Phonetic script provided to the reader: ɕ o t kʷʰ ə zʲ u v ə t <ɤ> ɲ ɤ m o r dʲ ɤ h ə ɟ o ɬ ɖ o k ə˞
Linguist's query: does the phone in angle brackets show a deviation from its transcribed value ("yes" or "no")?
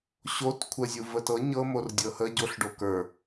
no